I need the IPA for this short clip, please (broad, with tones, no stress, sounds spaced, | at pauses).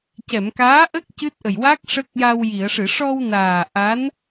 c ɛ˨˩˨ m k aː˧˥ ʔ ə˦˥ k̚ c ɨ˦˥ t̚ ʔ ə˨˩ j w a˦˥ k̚ ʂ ə˦˥ k̚ j a˧ w j i˨˩˨ ə̯ ʂ ɨ˨˩˨ ʂ ɔ˧ w n aː˨˩ ʔ a˧˥ n